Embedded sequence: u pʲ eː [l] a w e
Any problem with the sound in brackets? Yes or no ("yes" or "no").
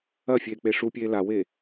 no